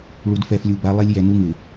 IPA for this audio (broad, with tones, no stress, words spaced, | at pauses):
ɭu˨dfɛ˨flʲu˨ba˨˦ lˠe˦lʲjɛ˨ nu˦ŋɪ˨